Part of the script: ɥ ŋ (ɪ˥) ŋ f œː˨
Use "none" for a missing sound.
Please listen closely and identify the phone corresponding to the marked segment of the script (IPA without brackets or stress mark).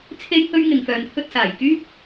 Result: ɪ˨